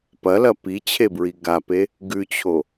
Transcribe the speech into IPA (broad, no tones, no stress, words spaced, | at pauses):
pɐlɐ pi t͡ɕʰebɹiɡape | ɡʉt͡ɕʰo